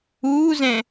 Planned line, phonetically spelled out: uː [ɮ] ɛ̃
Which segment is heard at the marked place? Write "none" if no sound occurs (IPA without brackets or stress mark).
z